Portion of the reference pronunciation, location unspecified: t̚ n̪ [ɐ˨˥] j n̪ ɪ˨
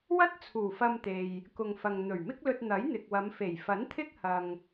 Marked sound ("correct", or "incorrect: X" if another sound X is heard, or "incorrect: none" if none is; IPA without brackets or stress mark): correct